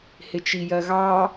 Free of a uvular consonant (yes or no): yes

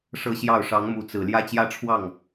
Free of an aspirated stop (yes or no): no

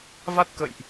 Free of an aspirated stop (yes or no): yes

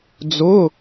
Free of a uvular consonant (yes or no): yes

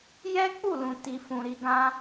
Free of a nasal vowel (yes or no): no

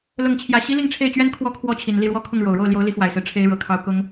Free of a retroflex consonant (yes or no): no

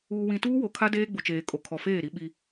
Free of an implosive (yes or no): no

